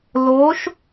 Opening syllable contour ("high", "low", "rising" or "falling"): rising